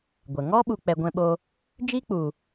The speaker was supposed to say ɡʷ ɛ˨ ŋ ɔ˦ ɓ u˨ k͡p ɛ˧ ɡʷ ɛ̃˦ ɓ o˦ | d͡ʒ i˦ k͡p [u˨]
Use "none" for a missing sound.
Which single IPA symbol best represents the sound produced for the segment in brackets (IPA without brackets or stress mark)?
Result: u˨